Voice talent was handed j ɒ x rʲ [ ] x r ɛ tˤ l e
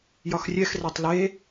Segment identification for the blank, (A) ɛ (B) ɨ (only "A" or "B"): A